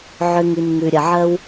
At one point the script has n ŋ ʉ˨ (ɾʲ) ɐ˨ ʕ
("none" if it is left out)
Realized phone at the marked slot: ɾʲ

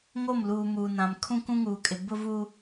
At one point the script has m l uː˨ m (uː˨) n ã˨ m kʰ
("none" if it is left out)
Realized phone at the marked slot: uː˨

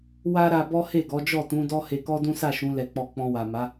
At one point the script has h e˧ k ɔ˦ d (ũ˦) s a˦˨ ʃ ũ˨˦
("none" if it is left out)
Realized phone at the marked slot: ũ˦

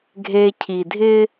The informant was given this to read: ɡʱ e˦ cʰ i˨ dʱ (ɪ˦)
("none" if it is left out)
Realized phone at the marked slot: ɪ˦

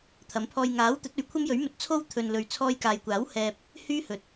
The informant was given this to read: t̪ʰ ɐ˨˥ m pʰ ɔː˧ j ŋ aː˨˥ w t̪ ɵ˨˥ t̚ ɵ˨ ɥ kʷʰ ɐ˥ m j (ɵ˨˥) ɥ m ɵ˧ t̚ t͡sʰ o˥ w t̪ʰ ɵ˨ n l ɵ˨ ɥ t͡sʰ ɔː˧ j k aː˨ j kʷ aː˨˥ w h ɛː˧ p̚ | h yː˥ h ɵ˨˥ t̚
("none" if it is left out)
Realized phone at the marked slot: ɵ˨˥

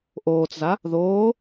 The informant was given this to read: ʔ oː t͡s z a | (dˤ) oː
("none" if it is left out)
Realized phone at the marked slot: ð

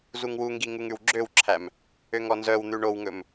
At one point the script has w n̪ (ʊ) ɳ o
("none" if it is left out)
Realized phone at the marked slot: ʉ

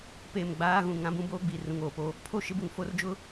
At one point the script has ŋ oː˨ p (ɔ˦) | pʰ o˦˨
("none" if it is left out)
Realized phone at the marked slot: o˦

